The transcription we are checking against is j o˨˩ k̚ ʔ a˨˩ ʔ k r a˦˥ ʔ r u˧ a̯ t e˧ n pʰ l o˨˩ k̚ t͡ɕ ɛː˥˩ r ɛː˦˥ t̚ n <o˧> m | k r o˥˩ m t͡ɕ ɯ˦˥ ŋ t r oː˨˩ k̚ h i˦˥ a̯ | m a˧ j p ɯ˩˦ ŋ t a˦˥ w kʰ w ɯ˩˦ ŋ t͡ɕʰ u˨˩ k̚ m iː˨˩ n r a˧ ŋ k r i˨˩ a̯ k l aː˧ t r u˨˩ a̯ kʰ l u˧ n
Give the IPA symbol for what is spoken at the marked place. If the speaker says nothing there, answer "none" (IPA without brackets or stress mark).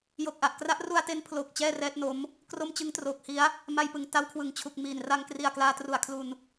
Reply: o˦˥